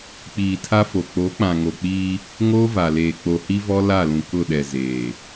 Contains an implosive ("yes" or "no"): yes